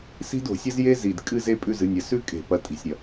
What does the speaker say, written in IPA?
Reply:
s i̤˥ d o̤˧˩˧ sʲ ɐ˥ z j e˥ z i˨˩ d kʼ ɨ˥˧ z e˥ pʼ ʉ˥˧ z ɨ˨˦ nʲ ɐ˨˦ s ʉ˥ kʼ e̤˧˩˧ p ɐ˨˦ tʼ i̤˨˩ sʲ ɾʲ ɐ˨˩

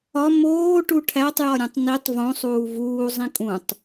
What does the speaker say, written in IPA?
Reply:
ɒ m oː ʈ u ʈʰ æ tˤ j ɒ ɾʲ ũ tˤ n i tˤ v õ sˤ uː v uː zˤ ĩ kʼ ũ tˤ

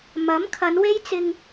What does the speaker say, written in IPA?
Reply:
m ɐ˨˥ m kʰ ɐ˨˧ n w e˥ j t͡s ɪ˧ ŋ

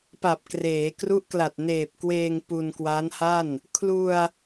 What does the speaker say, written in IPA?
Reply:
p a˨˩ p̚ k r eː˩˦ k r u˦˥ ʔ k l a˨˩ t̚ n eː˨˩ p̚ k w eː˧ ŋ p u˧ n k w a˦˥ n h a˥˩ n | kʰ l u˧ a̯

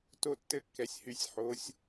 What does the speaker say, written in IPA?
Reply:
t o˦˨ tː ɘ˦ kː ɛ˩˧ sʲ h y˩˧ sʲ ħ o˩˧ sʲ

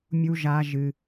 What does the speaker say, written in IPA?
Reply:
mʲ u˦ ʒ a˦ ʒ ɨ˧

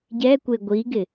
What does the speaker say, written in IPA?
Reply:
ɟ ɛ kʷ e ɡʷ i ɡ ɪ

